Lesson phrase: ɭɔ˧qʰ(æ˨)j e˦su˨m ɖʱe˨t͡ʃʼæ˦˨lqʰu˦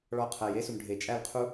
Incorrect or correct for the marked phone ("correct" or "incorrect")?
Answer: correct